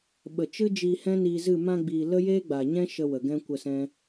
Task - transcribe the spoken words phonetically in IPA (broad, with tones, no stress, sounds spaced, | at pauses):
ɓ ə˨ t͡ʃ ɨ˦ d͡ʒ iː˧ h ɛ̃˦ n iː˧ z ɨ˦˨ m ã˧ ɡ͡b iː˨ l ə˦ j eː˦ ɡ͡b a˨ ɲ ɛ̃˦ ʃ ə˧ w ə˨ ɡ ɛ̃˦ kʷ ə˦˨ s ɛ̃˦